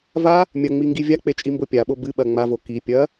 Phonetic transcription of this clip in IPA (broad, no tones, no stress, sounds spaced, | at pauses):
v a | mʲ ɐ ŋ͡m i ŋ ɡ i vʲ a k͡p e t͡ʃʼ i m b o pʲ a ɓ o b ɨ ɓ ɐ ŋ͡m a v o k i pʲ ɐ